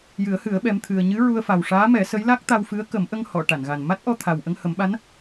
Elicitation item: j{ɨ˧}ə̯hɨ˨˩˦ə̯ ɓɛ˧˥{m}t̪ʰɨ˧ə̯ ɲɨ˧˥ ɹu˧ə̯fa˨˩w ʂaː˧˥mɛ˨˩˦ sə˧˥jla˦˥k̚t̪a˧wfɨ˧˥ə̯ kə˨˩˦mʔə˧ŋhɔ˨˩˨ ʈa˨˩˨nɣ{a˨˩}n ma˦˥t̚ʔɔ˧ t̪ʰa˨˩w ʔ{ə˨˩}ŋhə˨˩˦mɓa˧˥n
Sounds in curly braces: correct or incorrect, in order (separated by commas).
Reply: incorrect, correct, correct, incorrect